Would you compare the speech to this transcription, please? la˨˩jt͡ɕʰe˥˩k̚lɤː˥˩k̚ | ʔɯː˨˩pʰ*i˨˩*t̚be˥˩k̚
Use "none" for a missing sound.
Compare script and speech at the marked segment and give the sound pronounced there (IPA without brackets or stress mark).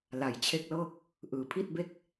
i˥˩